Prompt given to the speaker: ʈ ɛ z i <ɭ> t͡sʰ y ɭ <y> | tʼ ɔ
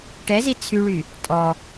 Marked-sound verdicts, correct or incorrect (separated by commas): incorrect, correct